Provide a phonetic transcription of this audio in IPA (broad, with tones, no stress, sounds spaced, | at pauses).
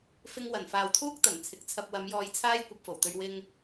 f ɪ˧ ŋ w ɐ˨˩ n f aː˨ w t̪ʰ uː˥ k̚ t̪ ɐ˨˩ n t͡sʰ ɪ˨˥ k̚ t͡sʰ ɐ˧ p̚ w ɐ˨˧ m j ɔː˧ j t͡sʰ aː˥ j kʷ ɐ˧ p̚ f o˨˩ w t̪ ɵ˧ ɥ w ɪ˧ ŋ